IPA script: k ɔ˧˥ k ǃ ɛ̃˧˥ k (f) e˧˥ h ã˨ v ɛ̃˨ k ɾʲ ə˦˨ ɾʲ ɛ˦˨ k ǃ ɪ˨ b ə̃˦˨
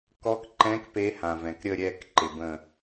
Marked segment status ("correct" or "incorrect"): incorrect